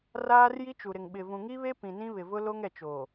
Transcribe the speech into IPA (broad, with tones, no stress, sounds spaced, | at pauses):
r aː˦ r j i˦ t͡ʃ u˨ ɾ ɪ˨ ŋ ɓ ɪ˨ v ũ˨ ŋ i˦ β e˦ p ĩ˨ n ĩ˦ β ɪ˨ v ʊ˦ l o˦ ŋ ɛ˨ t͡ʃ o˨